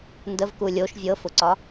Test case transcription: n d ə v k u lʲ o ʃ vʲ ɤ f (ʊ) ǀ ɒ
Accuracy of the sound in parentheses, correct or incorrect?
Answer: correct